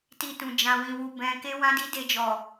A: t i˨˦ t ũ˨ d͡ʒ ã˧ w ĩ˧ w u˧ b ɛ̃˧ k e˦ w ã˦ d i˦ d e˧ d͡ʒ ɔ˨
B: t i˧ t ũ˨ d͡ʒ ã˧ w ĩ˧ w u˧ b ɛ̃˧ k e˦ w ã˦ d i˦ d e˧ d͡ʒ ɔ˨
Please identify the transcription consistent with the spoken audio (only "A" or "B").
B